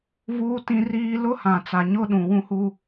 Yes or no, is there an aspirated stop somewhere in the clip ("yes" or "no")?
no